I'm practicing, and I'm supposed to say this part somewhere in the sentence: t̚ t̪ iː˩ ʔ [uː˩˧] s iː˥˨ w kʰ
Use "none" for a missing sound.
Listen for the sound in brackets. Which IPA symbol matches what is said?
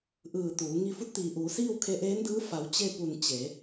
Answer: uː˩˧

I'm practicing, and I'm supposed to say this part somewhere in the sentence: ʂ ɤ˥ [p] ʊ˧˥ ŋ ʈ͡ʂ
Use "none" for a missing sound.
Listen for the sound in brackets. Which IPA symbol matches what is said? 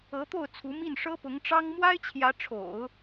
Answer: p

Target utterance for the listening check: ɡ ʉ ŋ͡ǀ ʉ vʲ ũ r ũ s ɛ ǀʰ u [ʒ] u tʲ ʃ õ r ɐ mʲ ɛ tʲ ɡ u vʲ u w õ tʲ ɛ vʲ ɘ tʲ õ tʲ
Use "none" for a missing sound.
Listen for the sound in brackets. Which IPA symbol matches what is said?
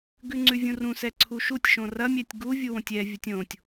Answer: ʃ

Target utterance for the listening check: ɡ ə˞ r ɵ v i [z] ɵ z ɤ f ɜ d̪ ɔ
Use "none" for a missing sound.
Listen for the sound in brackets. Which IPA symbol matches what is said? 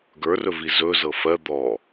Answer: z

